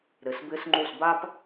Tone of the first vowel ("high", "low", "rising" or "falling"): low